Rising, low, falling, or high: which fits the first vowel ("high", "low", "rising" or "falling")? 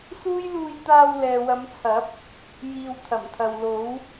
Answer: high